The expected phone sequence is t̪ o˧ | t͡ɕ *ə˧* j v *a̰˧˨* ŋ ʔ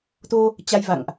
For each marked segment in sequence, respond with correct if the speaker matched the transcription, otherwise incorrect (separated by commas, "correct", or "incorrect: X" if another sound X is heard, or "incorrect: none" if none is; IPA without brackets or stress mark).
incorrect: a˧, correct